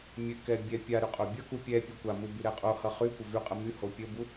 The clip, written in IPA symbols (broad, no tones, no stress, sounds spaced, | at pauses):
mʲ ɘ k ɛ bʲ ɛ pʲ a ɾ y qʼ o bʲ ʌ k u pʲ ɛ pʲ u kʷ a m u b y ɾ ɛ qʼ o h ʌ χ y kʷ ə v y qʼ ə m y h o pʲ ə b u